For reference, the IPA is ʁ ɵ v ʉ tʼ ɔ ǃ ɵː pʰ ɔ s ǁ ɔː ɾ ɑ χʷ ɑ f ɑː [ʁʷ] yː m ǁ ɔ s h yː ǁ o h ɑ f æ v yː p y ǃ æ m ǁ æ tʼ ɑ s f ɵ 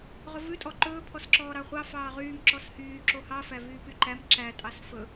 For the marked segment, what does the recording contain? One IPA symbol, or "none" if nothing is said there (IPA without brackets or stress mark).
ʁ